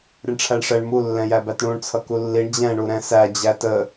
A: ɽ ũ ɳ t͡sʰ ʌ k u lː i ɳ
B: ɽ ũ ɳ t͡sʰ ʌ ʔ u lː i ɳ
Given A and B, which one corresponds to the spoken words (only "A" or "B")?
A